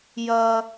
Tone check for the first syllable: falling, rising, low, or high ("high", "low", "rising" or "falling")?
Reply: high